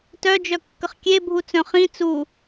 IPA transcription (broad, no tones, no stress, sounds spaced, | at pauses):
t œ d͡ʒ œ kː ə χ kʲ e bʱ u t͡s œ̃ χ ĩ t͡s u